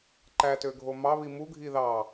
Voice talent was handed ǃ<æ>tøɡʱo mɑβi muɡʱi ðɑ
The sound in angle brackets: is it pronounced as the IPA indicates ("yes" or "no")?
yes